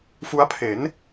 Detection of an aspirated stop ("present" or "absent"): present